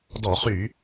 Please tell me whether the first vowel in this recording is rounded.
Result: yes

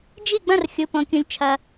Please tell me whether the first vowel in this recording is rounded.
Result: no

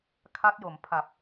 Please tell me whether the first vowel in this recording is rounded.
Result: no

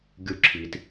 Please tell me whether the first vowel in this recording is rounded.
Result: yes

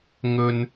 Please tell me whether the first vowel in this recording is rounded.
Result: yes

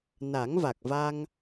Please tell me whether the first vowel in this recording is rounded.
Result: no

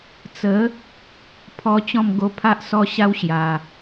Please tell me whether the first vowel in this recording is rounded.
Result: no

